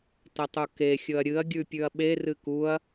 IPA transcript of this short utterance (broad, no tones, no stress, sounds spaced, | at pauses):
t ɐ tˤ u k e xʲ ɵ ɐ̯ ɾʲ ɨ ɐ̯ ɡʲ ʉ pʲ ʉ ɐ̯ ɓ e r ɨ k u ɐ̯